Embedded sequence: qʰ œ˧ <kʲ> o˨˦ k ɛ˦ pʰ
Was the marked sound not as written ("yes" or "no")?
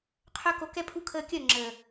yes